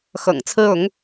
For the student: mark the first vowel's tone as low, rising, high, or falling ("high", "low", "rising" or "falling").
low